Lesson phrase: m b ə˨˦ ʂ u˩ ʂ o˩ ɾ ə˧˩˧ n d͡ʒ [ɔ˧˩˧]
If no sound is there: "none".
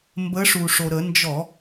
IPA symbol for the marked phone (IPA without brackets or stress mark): ɔ˧˩˧